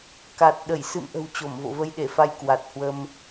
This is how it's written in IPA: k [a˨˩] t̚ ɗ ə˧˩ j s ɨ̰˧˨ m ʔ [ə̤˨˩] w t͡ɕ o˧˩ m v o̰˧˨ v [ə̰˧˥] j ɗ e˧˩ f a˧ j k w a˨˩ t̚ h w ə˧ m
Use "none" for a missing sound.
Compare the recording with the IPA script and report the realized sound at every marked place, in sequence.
a˨˩, ə̤˨˩, ə˧

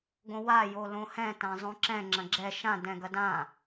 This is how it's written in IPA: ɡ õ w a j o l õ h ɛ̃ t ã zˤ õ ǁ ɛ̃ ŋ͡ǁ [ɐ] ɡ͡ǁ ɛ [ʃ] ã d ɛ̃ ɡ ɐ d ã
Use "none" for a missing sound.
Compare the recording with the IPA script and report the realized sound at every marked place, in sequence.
ɐ̃, ʃ

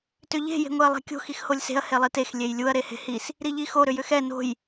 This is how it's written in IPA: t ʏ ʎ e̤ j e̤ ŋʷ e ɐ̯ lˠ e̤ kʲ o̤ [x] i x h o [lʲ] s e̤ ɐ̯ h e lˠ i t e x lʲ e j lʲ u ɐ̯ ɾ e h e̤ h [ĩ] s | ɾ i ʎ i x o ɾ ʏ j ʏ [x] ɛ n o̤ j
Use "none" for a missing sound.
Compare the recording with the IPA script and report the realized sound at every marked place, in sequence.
x, lʲ, i, x

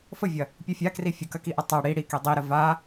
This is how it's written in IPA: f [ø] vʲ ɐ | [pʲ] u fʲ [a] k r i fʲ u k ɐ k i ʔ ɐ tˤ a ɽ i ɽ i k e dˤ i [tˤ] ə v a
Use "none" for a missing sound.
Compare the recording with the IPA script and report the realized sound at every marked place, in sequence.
ə, pʲ, a, ɾ

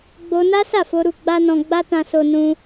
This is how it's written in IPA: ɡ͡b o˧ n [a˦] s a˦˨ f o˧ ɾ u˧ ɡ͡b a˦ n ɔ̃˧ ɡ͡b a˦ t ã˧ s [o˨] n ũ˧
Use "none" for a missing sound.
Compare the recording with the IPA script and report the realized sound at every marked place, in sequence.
a˦, o˧

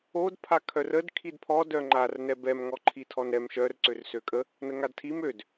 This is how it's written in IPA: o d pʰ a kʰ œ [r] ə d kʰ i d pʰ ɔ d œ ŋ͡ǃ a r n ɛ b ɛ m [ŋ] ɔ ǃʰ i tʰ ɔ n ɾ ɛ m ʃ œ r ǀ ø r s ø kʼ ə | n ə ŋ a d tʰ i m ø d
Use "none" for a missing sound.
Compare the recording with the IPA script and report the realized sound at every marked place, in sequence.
r, ŋ

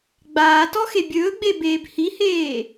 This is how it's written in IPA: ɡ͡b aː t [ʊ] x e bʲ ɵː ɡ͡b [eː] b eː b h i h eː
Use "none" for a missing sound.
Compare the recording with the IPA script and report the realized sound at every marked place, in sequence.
ɔ, e

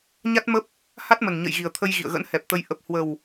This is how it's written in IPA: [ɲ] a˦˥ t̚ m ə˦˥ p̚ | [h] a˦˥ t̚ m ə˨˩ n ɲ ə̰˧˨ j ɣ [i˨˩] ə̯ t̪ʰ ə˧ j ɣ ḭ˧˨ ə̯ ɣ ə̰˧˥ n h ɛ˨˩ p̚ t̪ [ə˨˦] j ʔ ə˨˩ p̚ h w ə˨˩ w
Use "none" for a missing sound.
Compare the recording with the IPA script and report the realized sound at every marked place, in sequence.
ɲ, h, i˨˩, ə˨˦

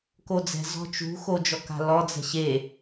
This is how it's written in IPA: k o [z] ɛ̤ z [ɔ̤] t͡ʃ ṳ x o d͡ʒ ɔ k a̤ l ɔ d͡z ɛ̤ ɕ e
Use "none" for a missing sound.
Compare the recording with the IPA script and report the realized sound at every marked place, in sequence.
d͡z, ɔ̤

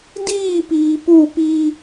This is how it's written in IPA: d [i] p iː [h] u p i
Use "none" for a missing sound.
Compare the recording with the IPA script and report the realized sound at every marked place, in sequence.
iː, p

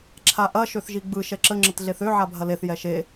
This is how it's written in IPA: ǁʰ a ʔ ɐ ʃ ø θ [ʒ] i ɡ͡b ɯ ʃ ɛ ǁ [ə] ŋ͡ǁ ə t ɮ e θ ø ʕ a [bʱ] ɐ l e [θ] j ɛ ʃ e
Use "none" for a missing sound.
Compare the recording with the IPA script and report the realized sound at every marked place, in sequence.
ʒ, ə, bʱ, θ

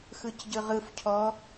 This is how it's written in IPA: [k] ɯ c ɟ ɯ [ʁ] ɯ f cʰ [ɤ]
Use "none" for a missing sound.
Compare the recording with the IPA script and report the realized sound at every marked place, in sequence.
x, ʁ, ɔ

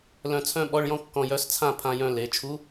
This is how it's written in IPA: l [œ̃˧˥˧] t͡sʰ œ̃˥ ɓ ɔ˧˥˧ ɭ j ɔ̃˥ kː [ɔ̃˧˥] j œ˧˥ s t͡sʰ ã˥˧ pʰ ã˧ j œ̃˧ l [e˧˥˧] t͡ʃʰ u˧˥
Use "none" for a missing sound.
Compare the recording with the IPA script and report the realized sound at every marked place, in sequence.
œ̃˧, ɔ̃˧, e˩˧

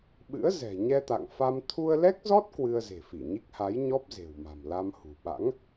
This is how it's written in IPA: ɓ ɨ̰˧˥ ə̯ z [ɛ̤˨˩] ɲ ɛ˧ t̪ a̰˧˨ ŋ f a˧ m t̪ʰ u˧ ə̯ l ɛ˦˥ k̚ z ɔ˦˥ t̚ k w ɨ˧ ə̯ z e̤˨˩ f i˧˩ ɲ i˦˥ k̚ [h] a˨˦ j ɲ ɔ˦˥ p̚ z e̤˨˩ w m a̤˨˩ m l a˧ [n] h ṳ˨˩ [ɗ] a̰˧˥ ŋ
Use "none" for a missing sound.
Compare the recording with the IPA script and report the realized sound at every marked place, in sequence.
ɛ̤˨˩, h, m, ɓ

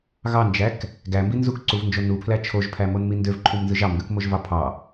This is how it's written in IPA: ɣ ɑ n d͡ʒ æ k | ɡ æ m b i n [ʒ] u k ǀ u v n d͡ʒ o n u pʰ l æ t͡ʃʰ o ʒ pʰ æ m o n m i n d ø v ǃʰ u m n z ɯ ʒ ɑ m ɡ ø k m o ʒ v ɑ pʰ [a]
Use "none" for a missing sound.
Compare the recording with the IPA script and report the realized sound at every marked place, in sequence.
z, ɑ

